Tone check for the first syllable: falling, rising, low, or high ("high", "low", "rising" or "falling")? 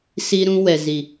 high